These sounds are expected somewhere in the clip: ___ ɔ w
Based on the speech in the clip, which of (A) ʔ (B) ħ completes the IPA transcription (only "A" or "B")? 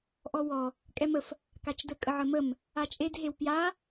A